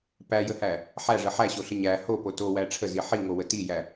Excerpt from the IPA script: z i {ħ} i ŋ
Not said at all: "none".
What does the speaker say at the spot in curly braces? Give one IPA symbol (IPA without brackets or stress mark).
ħ